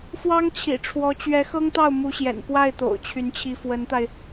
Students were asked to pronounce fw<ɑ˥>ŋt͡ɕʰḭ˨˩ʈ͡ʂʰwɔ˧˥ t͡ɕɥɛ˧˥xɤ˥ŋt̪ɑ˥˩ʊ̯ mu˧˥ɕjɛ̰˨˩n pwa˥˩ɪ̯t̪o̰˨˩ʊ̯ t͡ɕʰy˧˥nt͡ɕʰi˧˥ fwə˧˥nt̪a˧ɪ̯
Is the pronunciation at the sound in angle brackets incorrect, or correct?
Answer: correct